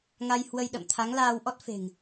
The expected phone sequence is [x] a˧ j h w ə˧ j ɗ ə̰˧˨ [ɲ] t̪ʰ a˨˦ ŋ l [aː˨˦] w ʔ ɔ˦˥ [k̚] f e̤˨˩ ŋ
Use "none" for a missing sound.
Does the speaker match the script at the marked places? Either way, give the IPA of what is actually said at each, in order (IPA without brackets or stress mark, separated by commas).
ŋ, m, aː˧, t̚